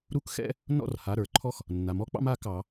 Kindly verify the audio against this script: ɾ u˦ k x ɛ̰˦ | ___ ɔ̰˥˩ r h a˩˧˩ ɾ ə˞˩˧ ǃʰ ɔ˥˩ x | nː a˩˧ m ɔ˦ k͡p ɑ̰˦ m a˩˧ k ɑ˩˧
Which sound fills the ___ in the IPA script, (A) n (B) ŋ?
A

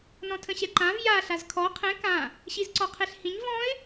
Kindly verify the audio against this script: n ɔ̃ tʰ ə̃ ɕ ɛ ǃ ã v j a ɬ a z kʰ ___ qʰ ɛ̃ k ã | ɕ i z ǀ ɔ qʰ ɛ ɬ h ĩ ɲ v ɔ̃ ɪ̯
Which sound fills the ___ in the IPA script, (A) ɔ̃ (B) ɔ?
B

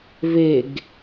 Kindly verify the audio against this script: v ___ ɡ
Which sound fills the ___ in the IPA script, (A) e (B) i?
A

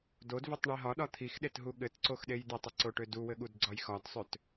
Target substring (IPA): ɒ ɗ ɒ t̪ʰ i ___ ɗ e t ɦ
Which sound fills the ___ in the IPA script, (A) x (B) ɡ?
A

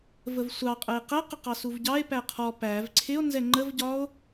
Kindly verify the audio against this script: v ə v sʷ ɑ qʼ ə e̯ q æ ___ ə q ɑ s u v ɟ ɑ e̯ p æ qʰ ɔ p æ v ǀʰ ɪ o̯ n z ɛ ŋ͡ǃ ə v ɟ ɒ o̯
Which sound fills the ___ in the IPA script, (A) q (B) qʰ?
A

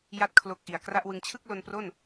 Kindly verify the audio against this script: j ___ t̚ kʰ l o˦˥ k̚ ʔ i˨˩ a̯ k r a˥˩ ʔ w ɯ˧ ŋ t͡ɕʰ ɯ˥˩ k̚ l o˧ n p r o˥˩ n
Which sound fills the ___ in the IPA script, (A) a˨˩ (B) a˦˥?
B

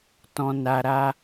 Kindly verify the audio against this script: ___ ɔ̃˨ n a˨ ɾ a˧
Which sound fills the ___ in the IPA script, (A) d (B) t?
B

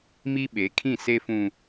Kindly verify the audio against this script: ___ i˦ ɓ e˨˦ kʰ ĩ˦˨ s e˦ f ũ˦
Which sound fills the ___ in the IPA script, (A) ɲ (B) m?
B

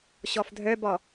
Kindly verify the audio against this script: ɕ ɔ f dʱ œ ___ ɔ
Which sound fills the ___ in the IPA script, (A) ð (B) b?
B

